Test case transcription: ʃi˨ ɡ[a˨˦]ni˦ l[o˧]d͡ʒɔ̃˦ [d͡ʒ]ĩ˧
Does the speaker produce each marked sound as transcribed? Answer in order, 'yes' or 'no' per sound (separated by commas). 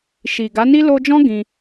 yes, yes, no